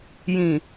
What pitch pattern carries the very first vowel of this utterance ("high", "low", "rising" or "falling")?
low